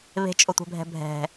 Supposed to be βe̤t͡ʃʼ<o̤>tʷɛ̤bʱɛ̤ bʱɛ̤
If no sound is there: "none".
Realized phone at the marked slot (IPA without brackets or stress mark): o